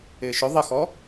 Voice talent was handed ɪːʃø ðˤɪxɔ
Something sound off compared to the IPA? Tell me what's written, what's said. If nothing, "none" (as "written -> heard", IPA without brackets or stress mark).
ø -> ɵ